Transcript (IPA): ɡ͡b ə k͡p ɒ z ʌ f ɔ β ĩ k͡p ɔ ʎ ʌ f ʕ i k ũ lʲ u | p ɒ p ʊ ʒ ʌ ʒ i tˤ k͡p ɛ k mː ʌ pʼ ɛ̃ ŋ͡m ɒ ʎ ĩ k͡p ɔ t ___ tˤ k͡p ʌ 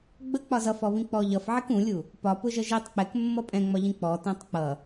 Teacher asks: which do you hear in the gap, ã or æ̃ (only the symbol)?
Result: æ̃